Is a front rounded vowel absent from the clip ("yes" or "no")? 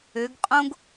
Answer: no